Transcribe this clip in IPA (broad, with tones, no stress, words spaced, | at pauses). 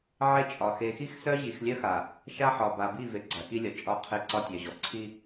ʕe˦t͡ʃʼɒ˨ xe˨xi˦x sœ˦ʑi˨xlʲœ˦xa˨ | ʃa˦ħɒ˨ ba˨bi˦˨ve˨ ɡ͡ǀa˨ki˦lʲɒ˨ t͡ʃʼɒ˦˨ qʰe˦ ǀɒ˦tʲœ˨ʑɔ˨ ǀʰi˦